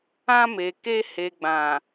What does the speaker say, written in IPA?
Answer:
ã˧ m e˨ k e˧ h e˨ ɡ͡b ã˨

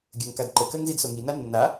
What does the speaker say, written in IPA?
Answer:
ɡʲ ə ŋ k a d ǃ ə k ɜ ŋ z i d s o ŋ i n a nː a

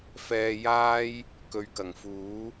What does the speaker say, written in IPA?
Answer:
f ɛː˧ j aː˥ j | k ɵ˨˧ ɥ k ɐ˨˩ ŋ f uː˨˥

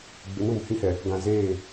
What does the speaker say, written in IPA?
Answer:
ɡ͡b ɪ˨˦ n ũ˨ m h ĩ˦ h ɛ˨ | ɡ ã˨ z eː˦˨

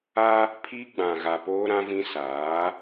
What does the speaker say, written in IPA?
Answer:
a˦ | pʰ i˦ ɡ͡b ã˨ ɣ a˨ p oː˦ ɾ ã˦ v ĩ˦ s aː˨˦

